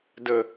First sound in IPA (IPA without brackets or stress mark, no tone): d